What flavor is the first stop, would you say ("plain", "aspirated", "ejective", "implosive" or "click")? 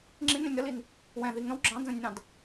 click